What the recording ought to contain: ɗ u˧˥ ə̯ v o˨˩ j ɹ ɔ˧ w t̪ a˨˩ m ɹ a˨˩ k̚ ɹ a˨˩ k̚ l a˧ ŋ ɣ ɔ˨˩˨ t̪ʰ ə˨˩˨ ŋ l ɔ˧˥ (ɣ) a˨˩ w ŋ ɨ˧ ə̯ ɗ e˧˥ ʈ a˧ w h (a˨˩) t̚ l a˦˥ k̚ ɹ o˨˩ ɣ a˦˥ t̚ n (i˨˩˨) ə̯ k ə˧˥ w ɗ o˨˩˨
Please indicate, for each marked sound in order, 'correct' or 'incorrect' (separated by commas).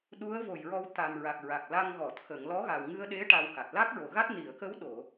correct, correct, correct